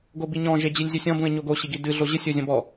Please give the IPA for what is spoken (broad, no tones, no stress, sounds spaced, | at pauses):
ɡ o b i ɲ ɔ̃ ʒ e d͡ʑ i lʲ zʲ u sʲ ɔ̃ b ũ ɪ̯ ɲ o ɡ o ɕ i ɡ i d ɨ ɮ o ʑ ɨ sʲ o zʲ ɔ̃ b ɔ